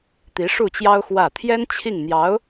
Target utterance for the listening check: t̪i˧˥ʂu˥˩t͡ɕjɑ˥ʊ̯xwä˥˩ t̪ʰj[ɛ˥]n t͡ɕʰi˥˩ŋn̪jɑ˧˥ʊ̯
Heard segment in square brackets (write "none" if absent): ɛ˥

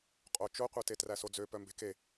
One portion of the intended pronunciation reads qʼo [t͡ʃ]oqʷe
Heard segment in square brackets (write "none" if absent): t͡ʃ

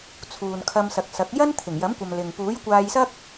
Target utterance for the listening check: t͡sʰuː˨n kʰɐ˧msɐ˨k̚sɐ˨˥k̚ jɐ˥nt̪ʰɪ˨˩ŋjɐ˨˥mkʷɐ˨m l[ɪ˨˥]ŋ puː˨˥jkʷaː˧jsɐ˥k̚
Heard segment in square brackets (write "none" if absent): ɪ˨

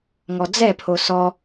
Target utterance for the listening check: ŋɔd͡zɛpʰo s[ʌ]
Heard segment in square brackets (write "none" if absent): ɔ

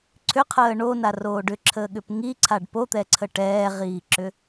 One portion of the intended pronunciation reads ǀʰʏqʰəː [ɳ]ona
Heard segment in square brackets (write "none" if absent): ɳ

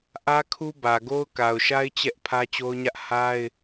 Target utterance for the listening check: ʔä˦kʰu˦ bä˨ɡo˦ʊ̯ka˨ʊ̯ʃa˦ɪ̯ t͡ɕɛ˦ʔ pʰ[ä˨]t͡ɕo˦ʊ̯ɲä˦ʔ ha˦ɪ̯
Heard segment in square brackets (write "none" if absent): ä˦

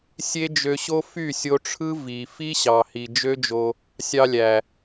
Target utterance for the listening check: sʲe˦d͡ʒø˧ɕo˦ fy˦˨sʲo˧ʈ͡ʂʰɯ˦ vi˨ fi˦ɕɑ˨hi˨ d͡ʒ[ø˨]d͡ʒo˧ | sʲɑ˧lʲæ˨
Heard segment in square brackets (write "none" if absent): ø˦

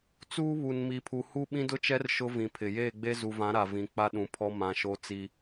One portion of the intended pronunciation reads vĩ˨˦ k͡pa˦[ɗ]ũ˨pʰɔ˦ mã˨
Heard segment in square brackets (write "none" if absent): ɗ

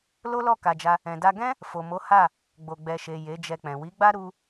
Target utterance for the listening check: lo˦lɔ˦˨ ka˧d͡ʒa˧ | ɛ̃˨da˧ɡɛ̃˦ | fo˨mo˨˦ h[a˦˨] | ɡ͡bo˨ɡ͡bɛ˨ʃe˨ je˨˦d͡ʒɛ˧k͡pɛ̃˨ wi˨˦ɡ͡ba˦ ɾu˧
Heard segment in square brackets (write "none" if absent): a˦˨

